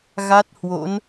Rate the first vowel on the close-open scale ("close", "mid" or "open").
open